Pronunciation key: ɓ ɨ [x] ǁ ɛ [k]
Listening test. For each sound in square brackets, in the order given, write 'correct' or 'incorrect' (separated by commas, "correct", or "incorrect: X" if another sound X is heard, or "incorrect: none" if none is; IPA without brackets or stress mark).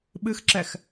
correct, incorrect: x